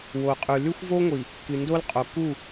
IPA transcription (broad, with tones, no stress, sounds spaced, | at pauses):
w o˨ qʼ ʉ˨ l ʉ˦ xʷ v o˦ ŋʷ i˨ | k ɨ˨ n d o˦ l qʼ o˨ k u˦˨